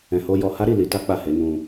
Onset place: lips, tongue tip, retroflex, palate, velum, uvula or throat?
throat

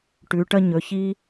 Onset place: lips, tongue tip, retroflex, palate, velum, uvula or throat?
retroflex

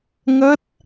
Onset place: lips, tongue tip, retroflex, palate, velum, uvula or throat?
velum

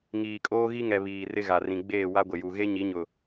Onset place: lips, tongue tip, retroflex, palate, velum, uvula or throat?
velum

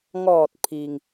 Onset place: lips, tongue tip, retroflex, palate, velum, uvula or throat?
velum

